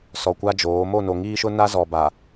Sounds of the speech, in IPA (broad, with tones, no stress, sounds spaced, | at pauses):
s ɔ˨ kʷ a˦ d͡ʒ oː˨˦ m o˦˨ n o˨ ŋ iː˦ ʃ ʊ˦ n a˦ z ɔ˨ b a˨